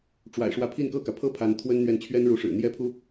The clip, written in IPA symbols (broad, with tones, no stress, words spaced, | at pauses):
ʈ͡ʂwa̰˨˩ɪ̯ʂwä˧˥pʰi˥˧n kɤ˥˩kä˩pʰɤ˥ pʰa˧˥nt̪ʰwə˥nn̪ɥɛ˥˩n t͡ɕʰɥɛ˥nɻu˧˥ʂɻ̩˨˩ n̪jɛ˥pʰu˥